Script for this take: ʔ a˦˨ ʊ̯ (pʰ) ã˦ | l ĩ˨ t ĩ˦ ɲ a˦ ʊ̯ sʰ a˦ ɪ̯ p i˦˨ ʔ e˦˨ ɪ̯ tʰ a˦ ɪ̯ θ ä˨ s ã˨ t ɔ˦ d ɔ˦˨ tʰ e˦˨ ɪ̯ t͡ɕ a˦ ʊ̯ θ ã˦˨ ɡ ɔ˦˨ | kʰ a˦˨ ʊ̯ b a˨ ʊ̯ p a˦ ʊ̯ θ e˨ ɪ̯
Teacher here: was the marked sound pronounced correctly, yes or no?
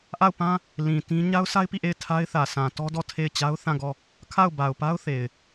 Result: no